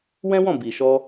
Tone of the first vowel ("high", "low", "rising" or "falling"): high